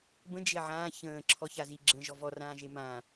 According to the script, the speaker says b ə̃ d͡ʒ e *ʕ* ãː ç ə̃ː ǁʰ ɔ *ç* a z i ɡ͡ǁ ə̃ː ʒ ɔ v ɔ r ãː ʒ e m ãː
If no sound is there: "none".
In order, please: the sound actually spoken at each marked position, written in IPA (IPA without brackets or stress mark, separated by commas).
ʕ, ç